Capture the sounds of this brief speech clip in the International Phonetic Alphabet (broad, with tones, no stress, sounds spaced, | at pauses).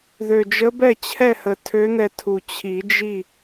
ð ø˨˩ d͡ʒ ə˧˥ b ɛ˥˨ t͡ɕʰ ɛ˥˨ h ə˨˩ tʰ ø˧˥ n̪ ɛ˧ tʰ u˨˩ t͡ɕʰ i˨˩˦ d͡ʒ i˥˨